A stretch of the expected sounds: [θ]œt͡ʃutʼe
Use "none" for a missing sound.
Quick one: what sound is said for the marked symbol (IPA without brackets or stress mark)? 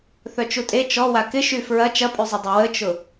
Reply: θ